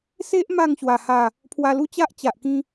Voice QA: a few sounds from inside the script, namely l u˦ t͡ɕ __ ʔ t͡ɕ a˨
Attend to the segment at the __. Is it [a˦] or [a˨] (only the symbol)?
a˦